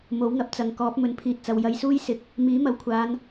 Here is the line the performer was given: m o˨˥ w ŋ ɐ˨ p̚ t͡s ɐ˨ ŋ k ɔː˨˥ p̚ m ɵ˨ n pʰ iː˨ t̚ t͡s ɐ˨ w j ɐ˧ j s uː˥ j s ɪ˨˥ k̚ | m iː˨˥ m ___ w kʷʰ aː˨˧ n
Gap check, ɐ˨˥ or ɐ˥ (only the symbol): ɐ˨˥